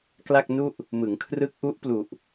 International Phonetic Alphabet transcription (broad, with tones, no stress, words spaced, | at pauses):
kla˥˩k̚nu˥˩ʔ | mɯ˩˦ŋkʰrɯ˦˥k̚ʔu˦˥ʔ plu˨˩ʔ